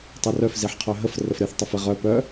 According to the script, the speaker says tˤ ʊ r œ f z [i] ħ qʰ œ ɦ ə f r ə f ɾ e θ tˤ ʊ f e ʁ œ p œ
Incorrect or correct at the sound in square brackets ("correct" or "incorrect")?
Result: correct